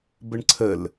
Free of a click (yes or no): no